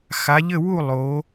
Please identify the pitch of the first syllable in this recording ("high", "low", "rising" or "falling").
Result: rising